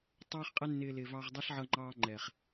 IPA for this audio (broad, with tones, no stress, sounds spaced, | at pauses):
tˤ ɑː˦ χ qʼ ɛ˦ nː ɪː˧ l ɪː˨ v ɑ˧ ʁ dˤ ʌ˦ ɬ ʕ ʌ˧ ŋ͡ǃ ɑː˧ ŋ͡ǃ ɛː˨ χ